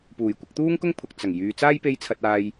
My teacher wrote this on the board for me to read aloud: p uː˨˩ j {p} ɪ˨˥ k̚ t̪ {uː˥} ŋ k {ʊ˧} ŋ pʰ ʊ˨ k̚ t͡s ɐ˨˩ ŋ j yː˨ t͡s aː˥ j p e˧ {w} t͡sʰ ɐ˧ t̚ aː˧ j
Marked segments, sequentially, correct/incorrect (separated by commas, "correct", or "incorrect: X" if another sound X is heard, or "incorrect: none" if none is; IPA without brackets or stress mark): incorrect: kʷ, correct, incorrect: ʊ˥, incorrect: j